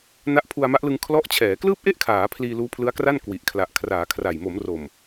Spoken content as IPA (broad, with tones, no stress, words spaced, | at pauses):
na˦˥ʔpʰu˧a̯ma˦˥ʔlɯ˧ŋ kʰlɔ˦˥ʔt͡ɕʰɛː˩˦ klɯː˥˩p̚ʔe˥˩ʔkʰaː˩˦ pʰliː˧luː˦˥pʰlɯ˦˥a̯kra˥˩n kwi˨˩ʔkʰla˨˩ʔ kʰraː˩˦ kʰra˨˩j mo˩˦mro˨˩m